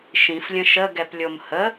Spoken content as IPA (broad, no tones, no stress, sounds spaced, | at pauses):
ʃ ĩ f lʲ ə̃ ʃ ə ɡ ɛ p lʲ o m h ə